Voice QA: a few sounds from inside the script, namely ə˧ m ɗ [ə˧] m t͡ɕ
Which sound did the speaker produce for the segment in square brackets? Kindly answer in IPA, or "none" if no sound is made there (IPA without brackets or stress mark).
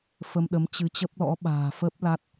ə˨˦